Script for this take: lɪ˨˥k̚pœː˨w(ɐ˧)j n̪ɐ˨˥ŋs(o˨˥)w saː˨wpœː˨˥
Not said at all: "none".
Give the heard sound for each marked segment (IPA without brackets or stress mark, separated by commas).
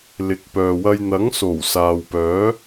ɐ˧, o˨˩